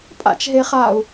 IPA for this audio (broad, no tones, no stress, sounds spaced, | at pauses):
pʼ a̰ t͡ʃ ɦ e χ a u̯